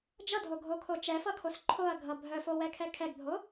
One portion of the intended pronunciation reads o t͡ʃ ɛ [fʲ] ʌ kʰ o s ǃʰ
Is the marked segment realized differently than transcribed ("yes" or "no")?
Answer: yes